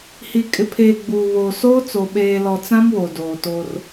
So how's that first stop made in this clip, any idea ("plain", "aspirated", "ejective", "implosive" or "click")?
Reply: ejective